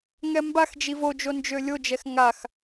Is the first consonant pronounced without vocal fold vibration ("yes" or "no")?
no